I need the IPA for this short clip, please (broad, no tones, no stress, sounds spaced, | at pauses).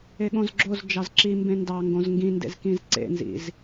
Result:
e ɠ õ z ɡ͡ǁ o z d͡ʒ ɑ z ǁ i m b ẽ n d ɑ ŋ ɡ õ z ŋ ɡ ĩ n d ḛ z k ĩ z ǀ ḛ n z ḭ z